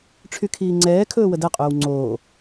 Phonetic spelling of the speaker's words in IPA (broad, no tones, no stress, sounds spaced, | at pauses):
ʈ͡ʂʰ y kʰ iː ŋ͡ǀ ɛː kʰ ɵː w ə d ɛ qʼ ɵː w ŋ͡ǀ oː